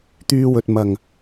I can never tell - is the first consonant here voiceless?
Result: yes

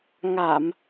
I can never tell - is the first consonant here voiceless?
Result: no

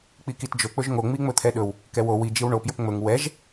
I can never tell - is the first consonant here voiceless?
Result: yes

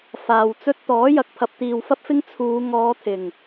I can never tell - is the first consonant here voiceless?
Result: yes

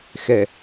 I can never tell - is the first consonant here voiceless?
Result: yes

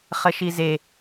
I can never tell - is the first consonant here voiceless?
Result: yes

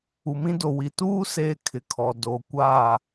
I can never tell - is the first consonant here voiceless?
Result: no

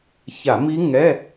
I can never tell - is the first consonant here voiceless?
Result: yes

